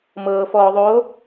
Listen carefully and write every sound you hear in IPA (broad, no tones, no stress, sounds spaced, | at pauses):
m ɤː f ɔː ðˤ oː